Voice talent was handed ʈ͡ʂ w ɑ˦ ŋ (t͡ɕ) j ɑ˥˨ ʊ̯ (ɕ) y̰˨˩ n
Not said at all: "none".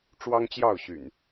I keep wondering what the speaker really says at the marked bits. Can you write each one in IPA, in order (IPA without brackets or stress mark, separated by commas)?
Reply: t͡ɕ, ɕ